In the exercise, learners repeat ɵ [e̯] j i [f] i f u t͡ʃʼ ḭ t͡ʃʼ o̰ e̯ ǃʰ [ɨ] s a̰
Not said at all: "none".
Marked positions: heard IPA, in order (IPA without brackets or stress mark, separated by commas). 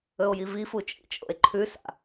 o̯, v, ʉ